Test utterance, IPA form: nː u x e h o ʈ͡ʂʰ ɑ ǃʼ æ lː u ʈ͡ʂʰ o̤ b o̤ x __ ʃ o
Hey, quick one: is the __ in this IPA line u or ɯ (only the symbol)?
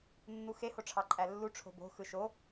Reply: ɯ